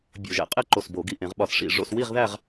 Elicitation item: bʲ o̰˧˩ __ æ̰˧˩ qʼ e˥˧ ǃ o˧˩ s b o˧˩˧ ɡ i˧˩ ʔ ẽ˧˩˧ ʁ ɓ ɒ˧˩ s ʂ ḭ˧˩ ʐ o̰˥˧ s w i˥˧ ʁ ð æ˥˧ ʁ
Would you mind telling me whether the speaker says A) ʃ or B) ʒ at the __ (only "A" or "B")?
B